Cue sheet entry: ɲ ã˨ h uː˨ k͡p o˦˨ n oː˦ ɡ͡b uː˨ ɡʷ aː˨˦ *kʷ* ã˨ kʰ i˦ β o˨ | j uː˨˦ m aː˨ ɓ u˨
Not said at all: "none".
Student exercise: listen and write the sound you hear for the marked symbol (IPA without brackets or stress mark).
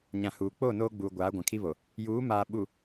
ɡʷ